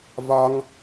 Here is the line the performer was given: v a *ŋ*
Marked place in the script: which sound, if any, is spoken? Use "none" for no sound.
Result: ŋ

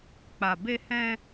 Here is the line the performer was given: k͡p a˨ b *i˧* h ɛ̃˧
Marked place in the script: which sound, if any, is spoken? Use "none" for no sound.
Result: e˧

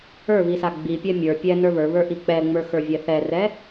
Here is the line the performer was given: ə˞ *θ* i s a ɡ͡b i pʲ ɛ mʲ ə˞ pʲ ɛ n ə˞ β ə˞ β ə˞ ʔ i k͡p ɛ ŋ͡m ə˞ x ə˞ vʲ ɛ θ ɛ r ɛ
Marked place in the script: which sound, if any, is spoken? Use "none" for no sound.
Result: β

